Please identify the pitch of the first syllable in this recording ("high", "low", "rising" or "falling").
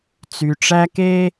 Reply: low